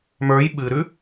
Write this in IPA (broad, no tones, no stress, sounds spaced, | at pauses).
m ə˞ j ɓ ɨ ɾ ʉ